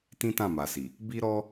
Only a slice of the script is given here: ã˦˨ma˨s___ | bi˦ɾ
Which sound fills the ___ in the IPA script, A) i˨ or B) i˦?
A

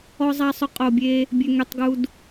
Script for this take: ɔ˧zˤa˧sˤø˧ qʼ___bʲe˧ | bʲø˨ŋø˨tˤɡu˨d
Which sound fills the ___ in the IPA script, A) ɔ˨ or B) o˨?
B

